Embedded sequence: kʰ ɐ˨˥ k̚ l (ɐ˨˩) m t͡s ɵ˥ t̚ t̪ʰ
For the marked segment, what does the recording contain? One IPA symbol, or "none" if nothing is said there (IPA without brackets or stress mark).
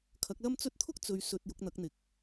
ɐ˥